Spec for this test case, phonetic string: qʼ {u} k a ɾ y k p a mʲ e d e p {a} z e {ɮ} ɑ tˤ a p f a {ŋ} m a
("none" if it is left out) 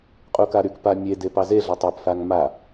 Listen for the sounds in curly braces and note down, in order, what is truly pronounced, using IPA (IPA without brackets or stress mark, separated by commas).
u, ɑ, ɮ, ŋ